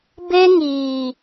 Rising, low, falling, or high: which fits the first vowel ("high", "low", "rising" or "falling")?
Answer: high